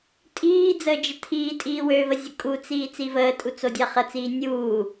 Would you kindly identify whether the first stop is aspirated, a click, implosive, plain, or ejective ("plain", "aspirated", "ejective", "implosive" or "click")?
ejective